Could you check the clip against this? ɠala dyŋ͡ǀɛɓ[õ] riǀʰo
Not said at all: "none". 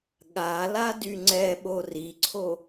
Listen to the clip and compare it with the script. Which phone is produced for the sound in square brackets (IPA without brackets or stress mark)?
o